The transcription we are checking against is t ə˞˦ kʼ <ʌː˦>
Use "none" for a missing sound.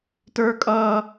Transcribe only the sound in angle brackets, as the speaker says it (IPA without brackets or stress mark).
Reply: ʌː˦